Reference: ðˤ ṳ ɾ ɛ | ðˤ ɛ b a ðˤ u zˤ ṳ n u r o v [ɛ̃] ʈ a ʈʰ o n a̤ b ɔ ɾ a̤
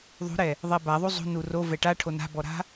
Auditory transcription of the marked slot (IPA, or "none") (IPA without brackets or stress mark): ɛ